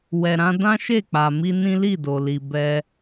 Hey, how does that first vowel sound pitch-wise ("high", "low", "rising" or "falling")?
low